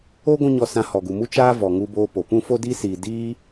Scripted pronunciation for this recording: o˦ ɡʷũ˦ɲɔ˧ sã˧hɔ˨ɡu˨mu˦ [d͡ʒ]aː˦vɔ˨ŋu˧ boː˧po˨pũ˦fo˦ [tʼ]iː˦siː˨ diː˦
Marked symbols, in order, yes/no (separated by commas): no, no